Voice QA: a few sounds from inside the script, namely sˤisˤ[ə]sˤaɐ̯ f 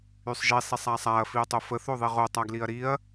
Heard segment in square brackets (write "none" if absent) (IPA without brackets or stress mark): a